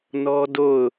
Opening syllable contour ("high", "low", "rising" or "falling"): high